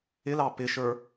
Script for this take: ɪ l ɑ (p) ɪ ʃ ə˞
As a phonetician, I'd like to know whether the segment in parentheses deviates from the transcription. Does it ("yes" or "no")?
no